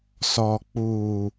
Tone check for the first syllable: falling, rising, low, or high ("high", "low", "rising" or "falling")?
low